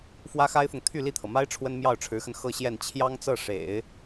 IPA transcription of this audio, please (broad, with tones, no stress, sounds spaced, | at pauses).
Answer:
f w ä˥ x a˥ ɪ̯ f ʊ˨ ŋ t̪ʰ y˥˧ l i˥˩ t̪ʰ ɤ˩ m a˥ ɪ̯ ʈ͡ʂʰ w ə˥ n m j ɑ˥˩ ʊ̯ ʈ͡ʂʰ ɻ̩˧˥ x ə˧ n x ɤ˥˧ ɕ j ɛ˥˩ n t͡ɕʰ j ɑ˥ ŋ t͡s ɤ˥˩ ʂ ḛ˨˩˦ ɪ̯